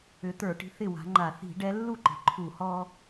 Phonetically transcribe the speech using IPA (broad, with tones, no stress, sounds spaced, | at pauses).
ʏ˨˦ t̪ ə˞˧˩˧ ʈ i̤˨˦ θ ɪ˥˩ w a̤˨˦ ŋ͡ǃ a˧˩˧ θ i̤˧˩˧ ɖ ɛ˨˦ lː u˥˩ ǃ i̤˩ ǃʰ u˧˩˧ h ɔ˦